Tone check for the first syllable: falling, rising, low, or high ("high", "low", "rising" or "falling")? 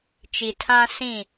low